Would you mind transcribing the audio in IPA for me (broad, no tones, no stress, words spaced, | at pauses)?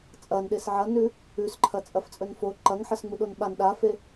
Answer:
t͡sʼɐnɗes ʕɐnʉ | ʉsǃʰɐ t͡sʼɐft͡sʼɵnfo ǃɐŋħɐs ŋ͡muɗonɓan ɗafe